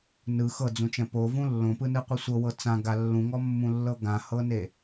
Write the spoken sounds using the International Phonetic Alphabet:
nɯ xɤd͡zũt͡ʃɛ̃ povũ lːõpɯnɯqʷɯ sʷɤwɤ t͡sãɡa lːũŋɔmːũlːɤ ɡãhɤne

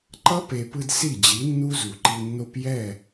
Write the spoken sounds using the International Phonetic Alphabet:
ǃʌ˦pe˨pɯ˧d si˦˨d͡ʑi˨˦nːu˦zu˨ ǃi˧nːo˦p jɛ˦˨

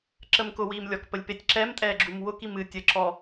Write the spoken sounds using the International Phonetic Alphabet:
ǁəmkʊwiːmlʲɔk pəlʲpetʲǁɛmtʼɛː ɡ͡ǁumwʊk imɨ tʲəǁɔ

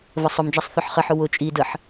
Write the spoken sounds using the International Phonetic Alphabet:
vəsˤʊmd͡ʒasˤ θʊħχəħʊ wʊ t͡ʃʼi dəħ

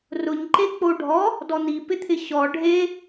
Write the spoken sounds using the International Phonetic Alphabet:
rʊɲ ǃek͡poɖʱɔ | dɔn̪i pɪt̪ʰɪɕɔ ɖʱe

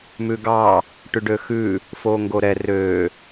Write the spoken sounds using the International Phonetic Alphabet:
mʉɡɑ | ʈʉɖøxʉ | foŋɡoɾɛ rø

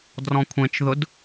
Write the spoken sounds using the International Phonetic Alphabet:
drɔ̃kʷʰẽt͡ʃðʊd

